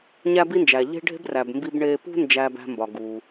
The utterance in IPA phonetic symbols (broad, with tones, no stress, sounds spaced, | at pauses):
ɲ æ˥ b i˥ n d͡ʒ æ˩ ʎ e̤˥ ɖʱ e̤˥ b r æ˩ b m b i˧ b ɳ e˧ p ṳ˥ n d͡ʒ æ˧ b æ̤˧ m b ɒ˩ ɡ u˩